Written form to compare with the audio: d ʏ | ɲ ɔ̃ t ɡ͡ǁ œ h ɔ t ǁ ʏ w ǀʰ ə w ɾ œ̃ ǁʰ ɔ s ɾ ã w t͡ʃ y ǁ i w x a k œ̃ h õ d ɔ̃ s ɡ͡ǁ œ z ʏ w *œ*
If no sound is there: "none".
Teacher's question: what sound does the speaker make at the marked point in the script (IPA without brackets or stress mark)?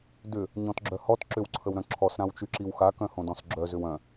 œ̃